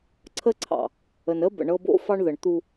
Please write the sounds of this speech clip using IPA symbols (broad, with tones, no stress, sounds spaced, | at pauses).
ǀʰ ə˦ ǀʰ ɑ̰˨ | ə˨ n ə˦ b ə̰˨ ɳ ɤ˦ b o̰˦ f ɑ˦ ɳ ð ə˨ ɳ t̪ u˦